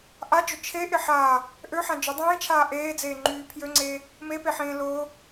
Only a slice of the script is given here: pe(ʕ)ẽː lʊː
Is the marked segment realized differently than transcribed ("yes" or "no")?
yes